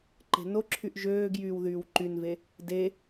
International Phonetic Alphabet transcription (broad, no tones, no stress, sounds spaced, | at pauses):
ǃ e̤ n o ǁʰ y ʔ ʒ øː ɡ j yː w ð yː w ǃ y n v e | d e